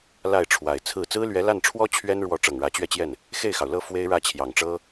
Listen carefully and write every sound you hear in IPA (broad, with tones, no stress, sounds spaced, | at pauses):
l a˥˩ ɪ̯ ʈ͡ʂʰ w a˨˩ ɪ̯ t͡sʰ ɹ̩˥˩ t͡s ɹ̩˥ l ɥ ɛ˧˥ l a˥˩ n ʈ͡ʂʰ w ɔ˥ t͡ɕʰ ɥ ɛ˥ n ɻ w ɔ˧˥ ʈ͡ʂ ɤ˨˩ ŋ ɻ ä˧˥ t͡ɕ ɥ ɛ˥˧ t͡ɕ j ɛ˥˩ n | x e˥˩ ɪ̯ x ɑ˩ ʊ̯ l ɤ˥˩ f w e˥ ɪ̯ ɻ ä˥˩ t͡ɕʰ j ɑ˨˩ ŋ ʈ͡ʂ ɤ˥